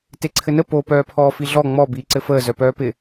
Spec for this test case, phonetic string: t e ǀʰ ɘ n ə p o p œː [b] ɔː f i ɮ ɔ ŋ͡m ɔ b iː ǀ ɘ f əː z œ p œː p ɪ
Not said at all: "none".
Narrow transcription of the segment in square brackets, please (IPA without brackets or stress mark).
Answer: pʰ